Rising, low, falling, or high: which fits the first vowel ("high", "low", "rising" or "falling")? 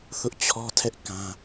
high